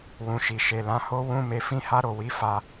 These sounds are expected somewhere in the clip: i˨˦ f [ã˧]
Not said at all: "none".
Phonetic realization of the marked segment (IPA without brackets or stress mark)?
a˧